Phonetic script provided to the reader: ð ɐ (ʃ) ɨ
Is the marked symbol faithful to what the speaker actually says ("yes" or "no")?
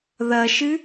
yes